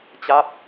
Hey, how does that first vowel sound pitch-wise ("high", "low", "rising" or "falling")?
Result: falling